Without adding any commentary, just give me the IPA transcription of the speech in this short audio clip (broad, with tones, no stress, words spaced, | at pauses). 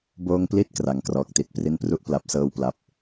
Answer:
boː˧ŋpli˦˥t̚ kra˩˦ŋkrɔː˨˩k̚ti˨˩t̚ pri˧npru˥˩ʔ pla˦˥p̚sɤː˥˩wpla˦˥p̚